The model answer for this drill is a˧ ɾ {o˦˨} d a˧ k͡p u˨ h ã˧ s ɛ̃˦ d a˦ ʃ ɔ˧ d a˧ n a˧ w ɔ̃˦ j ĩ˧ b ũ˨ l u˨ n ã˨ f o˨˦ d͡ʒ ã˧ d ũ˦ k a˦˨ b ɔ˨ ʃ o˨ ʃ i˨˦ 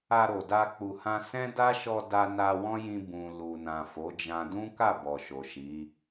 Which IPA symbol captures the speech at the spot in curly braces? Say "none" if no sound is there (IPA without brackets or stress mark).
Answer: o˨